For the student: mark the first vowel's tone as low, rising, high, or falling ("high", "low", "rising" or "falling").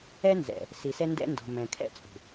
high